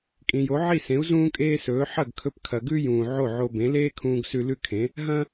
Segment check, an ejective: present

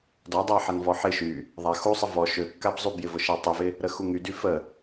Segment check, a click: absent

